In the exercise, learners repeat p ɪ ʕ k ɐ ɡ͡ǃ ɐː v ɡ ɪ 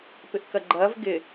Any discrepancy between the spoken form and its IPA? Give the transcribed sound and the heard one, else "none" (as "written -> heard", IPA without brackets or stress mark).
ʕ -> ʔ